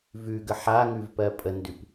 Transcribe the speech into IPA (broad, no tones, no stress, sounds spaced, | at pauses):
v ʉ ɡ ə ħ a ŋ ʉ v p ɜ pʼ ə n d ʉ p